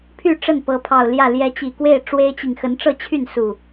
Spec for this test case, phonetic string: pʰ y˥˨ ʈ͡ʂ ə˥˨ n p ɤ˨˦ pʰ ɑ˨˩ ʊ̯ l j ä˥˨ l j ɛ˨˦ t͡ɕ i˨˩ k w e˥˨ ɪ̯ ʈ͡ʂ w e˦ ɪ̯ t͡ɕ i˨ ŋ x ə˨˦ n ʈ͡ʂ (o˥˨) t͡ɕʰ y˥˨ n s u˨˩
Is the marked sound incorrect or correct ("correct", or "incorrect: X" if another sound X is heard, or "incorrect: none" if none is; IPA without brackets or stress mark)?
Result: incorrect: ɤ˥˨